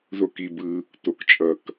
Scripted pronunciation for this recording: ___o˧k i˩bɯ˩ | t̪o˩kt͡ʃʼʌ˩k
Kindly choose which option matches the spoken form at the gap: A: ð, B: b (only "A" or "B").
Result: A